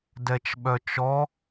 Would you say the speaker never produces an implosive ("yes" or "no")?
no